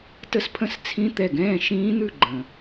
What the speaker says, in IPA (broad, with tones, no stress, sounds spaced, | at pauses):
t ə˥˨ s pʰ ə̃˥˨ s t͡sʰ ĩ˦˥ t̪ ɛ˧˩ ɡ ɛ̃ː˥˨ ʃ ĩː˦˥ n̪ ʉ˥˨ ɡ͡ǃ ə̃˩